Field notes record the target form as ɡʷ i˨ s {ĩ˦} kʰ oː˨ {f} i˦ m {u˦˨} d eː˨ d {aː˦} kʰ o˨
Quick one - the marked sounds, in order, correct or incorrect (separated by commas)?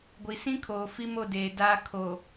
correct, correct, incorrect, correct